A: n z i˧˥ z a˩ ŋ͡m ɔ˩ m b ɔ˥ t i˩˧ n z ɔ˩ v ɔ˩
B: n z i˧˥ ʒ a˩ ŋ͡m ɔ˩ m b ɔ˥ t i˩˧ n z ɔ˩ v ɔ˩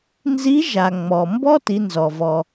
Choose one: B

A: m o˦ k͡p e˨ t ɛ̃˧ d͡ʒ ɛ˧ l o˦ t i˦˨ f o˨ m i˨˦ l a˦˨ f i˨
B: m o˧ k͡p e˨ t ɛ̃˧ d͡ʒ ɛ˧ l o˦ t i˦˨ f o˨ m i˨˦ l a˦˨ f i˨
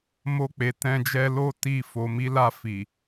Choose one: B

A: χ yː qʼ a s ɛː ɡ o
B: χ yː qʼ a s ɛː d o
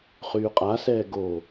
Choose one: A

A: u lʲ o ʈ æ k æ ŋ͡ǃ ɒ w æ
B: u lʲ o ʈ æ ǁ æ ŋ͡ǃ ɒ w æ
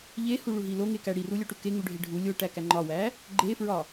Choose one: A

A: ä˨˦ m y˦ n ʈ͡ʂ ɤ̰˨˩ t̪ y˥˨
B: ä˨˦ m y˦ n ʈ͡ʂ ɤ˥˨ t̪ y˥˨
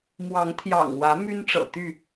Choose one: A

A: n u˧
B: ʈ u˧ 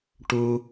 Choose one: B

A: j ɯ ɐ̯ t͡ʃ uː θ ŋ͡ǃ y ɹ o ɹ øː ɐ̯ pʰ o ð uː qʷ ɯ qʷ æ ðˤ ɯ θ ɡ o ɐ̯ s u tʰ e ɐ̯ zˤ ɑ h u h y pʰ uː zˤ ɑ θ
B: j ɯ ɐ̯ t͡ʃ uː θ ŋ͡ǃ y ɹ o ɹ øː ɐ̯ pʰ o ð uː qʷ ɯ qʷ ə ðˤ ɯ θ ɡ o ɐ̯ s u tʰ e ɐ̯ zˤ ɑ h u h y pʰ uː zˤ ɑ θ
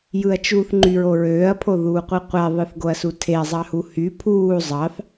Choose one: A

